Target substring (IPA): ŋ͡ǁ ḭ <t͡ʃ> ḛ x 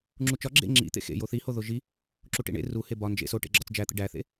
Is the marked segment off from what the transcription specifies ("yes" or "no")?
yes